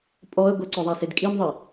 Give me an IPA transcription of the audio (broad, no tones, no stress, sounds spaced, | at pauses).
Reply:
pʼ ɔ ə̯ ɡʷ ə ǀ œ ðˤ a s e d kʼ i m ðˤ i